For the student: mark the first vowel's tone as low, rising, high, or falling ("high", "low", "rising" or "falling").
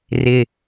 low